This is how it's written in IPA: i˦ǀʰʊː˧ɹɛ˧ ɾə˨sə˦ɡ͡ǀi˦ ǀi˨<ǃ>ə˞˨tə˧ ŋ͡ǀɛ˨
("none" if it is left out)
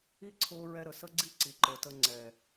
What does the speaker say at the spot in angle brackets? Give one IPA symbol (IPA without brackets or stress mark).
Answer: ǃ